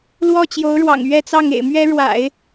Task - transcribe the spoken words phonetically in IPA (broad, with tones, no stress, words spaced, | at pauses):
lwɔ˥˩t͡ɕjo˧˥ʊ̯ɻwɑ̰˨˩ŋ ɥɛ˥˧t͡sɑ˥˩ŋ ḛ˨˩ɪ̯mɥɛ˥ ɻwa̰˨˩˦ɪ̯